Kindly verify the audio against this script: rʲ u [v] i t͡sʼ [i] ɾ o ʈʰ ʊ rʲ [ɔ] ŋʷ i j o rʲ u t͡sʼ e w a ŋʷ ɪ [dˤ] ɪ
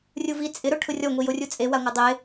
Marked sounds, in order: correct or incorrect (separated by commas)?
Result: correct, incorrect, correct, correct